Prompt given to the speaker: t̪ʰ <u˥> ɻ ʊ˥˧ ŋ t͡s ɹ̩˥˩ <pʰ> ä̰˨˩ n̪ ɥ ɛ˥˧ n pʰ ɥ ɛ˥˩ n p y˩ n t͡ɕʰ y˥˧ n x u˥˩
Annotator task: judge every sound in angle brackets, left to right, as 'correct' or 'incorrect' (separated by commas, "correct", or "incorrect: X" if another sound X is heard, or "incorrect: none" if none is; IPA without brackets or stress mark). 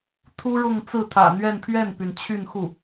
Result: correct, incorrect: t̪ʰ